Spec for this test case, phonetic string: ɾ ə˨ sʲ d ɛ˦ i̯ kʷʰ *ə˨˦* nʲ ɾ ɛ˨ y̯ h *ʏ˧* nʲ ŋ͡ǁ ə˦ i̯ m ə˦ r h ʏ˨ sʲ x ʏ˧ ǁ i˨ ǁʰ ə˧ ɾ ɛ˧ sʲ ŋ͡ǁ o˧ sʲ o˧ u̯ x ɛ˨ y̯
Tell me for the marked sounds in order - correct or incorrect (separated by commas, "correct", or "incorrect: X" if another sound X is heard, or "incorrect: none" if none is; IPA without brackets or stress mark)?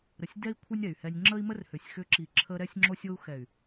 incorrect: ə˦, incorrect: ɛ˧